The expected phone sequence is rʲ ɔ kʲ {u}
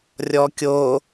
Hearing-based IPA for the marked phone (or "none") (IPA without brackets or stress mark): o